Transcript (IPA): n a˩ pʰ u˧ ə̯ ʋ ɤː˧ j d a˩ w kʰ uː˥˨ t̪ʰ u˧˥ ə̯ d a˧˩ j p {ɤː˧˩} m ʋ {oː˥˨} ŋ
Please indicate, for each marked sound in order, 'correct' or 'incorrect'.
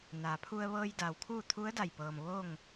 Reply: incorrect, correct

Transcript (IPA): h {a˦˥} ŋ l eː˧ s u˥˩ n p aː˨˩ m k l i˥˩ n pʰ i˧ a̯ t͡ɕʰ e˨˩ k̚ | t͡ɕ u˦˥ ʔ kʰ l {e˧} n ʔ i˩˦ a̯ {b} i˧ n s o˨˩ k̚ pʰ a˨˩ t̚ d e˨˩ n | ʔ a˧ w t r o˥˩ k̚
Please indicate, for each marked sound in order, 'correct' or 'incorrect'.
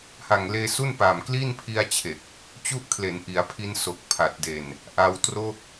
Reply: incorrect, incorrect, incorrect

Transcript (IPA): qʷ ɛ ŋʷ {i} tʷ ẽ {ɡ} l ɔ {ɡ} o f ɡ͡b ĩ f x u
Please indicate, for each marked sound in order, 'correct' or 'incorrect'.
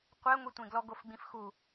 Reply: correct, correct, correct

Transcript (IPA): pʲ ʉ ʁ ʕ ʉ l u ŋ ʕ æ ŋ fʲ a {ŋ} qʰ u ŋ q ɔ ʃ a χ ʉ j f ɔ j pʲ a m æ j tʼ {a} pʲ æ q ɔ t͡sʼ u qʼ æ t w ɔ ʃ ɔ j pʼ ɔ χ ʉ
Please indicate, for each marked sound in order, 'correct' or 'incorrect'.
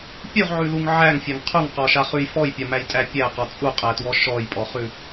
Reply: correct, incorrect

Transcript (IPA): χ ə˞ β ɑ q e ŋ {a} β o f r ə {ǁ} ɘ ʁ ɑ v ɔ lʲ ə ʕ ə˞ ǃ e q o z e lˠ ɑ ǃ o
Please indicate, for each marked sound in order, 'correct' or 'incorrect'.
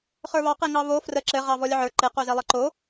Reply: incorrect, correct

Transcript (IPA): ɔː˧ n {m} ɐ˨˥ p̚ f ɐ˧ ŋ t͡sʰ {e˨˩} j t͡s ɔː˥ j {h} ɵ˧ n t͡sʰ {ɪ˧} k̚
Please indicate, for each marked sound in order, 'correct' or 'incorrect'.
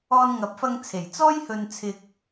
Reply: incorrect, correct, correct, correct

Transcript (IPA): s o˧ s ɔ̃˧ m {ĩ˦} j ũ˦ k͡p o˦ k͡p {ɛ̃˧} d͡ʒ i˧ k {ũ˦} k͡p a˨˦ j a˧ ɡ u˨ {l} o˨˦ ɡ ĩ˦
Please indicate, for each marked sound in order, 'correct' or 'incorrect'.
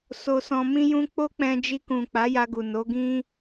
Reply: correct, correct, incorrect, incorrect

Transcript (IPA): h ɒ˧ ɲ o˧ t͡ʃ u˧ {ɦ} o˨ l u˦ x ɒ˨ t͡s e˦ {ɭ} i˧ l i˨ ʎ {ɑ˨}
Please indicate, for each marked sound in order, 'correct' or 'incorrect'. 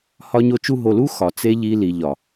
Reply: correct, incorrect, incorrect

